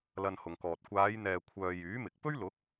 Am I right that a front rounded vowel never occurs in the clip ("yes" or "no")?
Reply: no